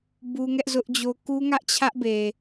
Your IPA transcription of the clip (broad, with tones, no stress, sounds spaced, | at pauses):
b u˦ ŋ ɛ˦ ʔ z ʊ˦ ʔ d͡ʑ o˦ k u˦ ŋ ä˦ ʔ t͡ɕʰ ä˦ ʔ b e˨